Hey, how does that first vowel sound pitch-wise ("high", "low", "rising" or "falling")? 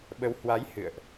rising